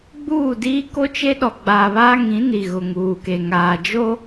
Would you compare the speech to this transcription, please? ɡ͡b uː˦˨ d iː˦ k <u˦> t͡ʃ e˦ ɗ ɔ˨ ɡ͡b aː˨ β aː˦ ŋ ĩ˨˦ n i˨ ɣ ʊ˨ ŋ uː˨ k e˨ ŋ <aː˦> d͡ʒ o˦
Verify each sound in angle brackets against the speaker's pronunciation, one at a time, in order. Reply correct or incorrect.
incorrect, incorrect

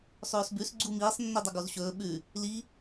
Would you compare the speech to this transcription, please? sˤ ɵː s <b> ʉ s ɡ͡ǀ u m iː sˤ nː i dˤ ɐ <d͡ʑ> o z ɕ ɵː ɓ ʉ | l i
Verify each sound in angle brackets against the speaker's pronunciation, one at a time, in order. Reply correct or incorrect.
correct, incorrect

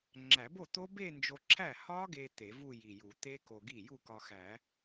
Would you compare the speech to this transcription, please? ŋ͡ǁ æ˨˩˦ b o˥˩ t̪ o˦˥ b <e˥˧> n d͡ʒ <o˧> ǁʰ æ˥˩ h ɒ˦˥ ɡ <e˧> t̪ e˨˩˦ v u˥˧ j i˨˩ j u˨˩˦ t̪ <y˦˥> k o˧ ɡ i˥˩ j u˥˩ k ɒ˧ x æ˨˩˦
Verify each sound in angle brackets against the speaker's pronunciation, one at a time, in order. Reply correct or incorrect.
correct, correct, correct, incorrect

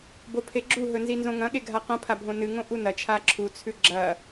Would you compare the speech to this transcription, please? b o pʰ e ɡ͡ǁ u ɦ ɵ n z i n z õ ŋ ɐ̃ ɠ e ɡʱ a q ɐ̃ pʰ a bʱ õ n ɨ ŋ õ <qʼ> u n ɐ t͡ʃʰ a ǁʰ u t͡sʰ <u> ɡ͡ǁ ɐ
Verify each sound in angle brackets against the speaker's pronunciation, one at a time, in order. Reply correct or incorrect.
incorrect, incorrect

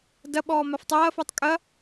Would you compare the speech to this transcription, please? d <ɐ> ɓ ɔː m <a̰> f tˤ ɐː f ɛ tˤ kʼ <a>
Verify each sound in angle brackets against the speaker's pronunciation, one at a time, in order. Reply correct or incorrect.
correct, incorrect, incorrect

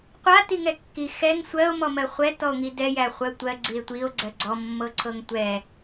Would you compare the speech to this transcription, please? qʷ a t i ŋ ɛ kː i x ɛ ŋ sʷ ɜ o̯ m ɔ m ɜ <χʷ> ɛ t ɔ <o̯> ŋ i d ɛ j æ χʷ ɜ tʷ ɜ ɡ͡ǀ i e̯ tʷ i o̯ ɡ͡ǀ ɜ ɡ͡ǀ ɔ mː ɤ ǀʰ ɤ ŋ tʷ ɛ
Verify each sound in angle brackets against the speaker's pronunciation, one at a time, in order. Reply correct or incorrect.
correct, correct

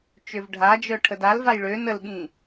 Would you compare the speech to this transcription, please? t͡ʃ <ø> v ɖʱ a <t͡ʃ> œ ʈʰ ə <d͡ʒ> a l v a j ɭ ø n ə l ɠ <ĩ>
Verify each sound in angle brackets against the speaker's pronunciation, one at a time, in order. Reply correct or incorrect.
correct, incorrect, incorrect, correct

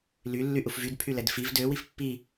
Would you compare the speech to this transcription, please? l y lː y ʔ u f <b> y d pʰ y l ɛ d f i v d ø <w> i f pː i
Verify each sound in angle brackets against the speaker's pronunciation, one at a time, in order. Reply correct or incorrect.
incorrect, correct

